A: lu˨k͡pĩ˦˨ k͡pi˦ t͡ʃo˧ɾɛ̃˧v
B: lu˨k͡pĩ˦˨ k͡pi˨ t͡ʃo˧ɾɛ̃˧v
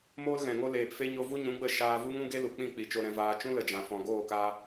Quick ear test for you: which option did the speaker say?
B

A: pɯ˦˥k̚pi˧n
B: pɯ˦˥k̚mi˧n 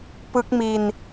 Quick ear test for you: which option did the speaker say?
B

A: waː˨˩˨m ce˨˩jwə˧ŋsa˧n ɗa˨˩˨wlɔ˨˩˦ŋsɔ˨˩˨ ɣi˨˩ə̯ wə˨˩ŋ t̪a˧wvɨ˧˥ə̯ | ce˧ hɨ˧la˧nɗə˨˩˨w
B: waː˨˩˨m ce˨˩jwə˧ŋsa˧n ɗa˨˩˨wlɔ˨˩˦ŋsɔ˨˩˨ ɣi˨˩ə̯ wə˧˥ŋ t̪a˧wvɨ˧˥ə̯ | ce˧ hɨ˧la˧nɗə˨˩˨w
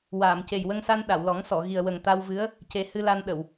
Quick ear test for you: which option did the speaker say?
A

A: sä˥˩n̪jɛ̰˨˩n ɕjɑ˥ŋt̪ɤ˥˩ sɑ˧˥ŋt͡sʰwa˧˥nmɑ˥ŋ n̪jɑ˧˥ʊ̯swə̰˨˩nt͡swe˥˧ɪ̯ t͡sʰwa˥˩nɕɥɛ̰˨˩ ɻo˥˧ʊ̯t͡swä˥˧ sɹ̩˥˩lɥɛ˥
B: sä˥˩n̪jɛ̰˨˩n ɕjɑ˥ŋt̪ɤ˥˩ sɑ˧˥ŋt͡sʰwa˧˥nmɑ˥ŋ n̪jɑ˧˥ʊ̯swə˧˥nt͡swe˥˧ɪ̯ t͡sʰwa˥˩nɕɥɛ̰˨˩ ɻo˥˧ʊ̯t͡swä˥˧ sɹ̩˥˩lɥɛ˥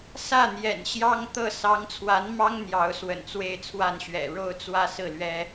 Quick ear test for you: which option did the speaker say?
A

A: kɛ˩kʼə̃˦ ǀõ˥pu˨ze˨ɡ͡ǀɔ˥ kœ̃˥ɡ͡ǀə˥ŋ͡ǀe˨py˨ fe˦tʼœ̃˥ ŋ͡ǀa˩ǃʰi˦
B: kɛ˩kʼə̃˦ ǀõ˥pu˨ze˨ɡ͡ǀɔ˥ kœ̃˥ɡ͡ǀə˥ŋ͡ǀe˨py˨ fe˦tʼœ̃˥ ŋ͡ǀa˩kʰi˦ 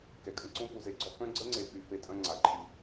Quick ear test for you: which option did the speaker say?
A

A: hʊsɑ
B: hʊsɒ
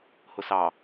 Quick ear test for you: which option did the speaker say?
A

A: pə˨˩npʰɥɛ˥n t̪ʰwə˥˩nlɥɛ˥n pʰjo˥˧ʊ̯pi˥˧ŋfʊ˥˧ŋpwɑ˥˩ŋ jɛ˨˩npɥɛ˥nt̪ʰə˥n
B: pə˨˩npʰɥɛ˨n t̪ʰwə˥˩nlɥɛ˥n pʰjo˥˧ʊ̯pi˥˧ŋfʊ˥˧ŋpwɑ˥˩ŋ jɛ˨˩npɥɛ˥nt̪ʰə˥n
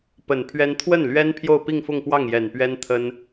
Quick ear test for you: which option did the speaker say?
A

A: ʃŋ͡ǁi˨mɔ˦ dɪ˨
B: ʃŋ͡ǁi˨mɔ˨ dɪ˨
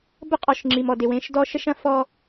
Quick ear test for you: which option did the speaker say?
B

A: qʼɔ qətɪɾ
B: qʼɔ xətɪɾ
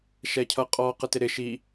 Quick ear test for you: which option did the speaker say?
A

